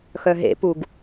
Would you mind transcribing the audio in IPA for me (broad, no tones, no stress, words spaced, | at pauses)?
xœɦḛpuɡ